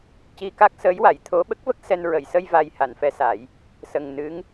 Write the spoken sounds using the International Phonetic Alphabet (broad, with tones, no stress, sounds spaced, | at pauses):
c i˧ k a˦˥ k̚ s əː˧˥ j w a˨˩˨ j t̪ʰ o˧˥ ɓ ə˦˥ k̚ v ə˦˥ k̚ s ɛ˧ n ɹ ə˨˩˨ j s ə˧ j v a˨˩ j h a˨˩˨ n f ɛ˧˥ s a˨˩˦ j | s ə˨˩ ŋ n ɨ˧˥ ŋ